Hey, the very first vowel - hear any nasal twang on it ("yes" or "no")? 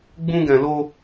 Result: yes